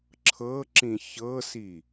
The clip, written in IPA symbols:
ǁʰ ɤ ǁ ĩ ç ɤ s i

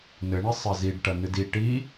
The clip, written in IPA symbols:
n ɘ ɳ ɘ sˤ ɘ z i ɖ ʈ ɐ n ɨ d i ʈ i

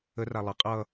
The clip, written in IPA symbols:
ə r a lˠ ə qʼ ʌ

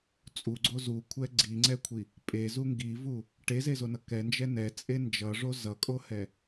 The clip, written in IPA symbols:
t͡sʼ u ɡ͡ǀ o z u kʷʰ ɛ ɡ͡ǀ i ŋ͡ǀ ɛ kʷʰ i | pʼ e z u ŋ ɡ i v u | ʈ e z e z o n ʌ k ɛ n d͡ʒ ɛ n ɛ t͡sʼ e n d͡ʒ ʌ ʐ o z ʌ kʼ o h ɛ

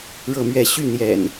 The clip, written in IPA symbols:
ɻ ɤ˥˨ m ɥ ɛ˥˨ ɕ y˥˨ n̪ j ɛ̰˨˩ n

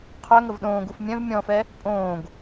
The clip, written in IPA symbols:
qʰ œ ŋ ə v ɗ õː ɡ u f mʲ œ̃ v mʲ ɔ̃ f ɛ | pʼ õː ɡ

